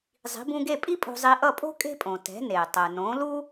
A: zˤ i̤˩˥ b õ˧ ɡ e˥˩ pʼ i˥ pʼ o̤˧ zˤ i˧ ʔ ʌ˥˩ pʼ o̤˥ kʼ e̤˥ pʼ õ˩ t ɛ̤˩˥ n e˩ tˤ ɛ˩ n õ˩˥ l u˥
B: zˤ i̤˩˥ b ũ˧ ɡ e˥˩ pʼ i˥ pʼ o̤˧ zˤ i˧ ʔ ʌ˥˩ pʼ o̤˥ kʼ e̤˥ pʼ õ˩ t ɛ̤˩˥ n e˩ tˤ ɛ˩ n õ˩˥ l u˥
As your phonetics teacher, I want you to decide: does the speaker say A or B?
B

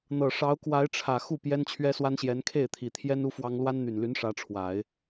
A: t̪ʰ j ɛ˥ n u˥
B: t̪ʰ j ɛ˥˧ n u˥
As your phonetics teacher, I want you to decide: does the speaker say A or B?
A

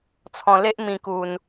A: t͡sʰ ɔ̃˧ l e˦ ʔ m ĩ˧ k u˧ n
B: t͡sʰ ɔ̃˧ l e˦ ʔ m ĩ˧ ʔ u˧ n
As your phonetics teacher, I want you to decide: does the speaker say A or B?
A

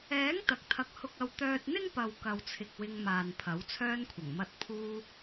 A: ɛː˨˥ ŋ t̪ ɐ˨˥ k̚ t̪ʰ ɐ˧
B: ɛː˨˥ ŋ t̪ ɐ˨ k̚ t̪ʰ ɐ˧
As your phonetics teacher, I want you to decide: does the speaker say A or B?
B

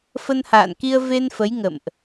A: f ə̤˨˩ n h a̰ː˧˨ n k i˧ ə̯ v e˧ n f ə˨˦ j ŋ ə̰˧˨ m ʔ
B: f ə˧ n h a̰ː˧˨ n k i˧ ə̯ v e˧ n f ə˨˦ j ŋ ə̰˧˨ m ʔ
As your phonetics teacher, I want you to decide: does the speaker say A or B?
B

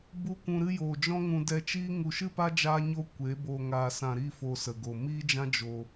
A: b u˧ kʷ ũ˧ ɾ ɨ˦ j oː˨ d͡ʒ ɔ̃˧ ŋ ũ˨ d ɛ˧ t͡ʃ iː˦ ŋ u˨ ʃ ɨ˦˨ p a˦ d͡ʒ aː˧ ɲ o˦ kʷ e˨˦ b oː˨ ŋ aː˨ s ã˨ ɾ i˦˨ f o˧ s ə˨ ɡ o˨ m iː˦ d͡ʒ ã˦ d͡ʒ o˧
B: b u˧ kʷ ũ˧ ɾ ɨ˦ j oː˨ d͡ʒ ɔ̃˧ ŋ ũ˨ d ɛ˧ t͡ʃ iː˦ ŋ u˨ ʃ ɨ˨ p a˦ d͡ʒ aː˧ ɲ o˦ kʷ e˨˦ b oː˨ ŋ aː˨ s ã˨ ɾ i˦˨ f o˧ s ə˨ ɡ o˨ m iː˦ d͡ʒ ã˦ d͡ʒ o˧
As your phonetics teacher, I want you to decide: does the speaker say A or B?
A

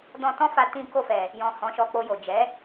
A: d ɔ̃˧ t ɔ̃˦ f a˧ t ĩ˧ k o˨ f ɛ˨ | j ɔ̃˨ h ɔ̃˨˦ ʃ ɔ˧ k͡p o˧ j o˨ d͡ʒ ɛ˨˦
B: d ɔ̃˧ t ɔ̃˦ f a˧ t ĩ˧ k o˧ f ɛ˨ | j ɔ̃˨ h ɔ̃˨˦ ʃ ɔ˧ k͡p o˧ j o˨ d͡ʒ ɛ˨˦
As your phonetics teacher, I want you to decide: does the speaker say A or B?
B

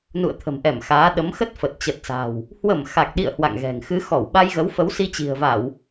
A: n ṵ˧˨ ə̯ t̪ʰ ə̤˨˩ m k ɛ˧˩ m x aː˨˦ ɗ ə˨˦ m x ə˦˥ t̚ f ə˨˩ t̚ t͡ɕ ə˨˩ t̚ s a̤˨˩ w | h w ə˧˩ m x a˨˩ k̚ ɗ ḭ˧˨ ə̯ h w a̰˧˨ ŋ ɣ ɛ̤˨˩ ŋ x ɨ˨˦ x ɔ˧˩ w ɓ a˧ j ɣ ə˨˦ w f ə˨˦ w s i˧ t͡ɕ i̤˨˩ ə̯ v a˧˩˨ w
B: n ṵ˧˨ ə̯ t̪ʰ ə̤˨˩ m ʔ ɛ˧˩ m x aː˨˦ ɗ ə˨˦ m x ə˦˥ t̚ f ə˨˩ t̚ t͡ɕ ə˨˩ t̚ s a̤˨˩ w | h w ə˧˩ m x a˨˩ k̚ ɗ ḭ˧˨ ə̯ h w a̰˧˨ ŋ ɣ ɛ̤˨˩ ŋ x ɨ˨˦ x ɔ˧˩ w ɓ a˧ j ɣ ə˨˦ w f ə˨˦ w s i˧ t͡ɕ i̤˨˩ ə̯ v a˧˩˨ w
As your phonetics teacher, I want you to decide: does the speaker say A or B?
B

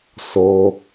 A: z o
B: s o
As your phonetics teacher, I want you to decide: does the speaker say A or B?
B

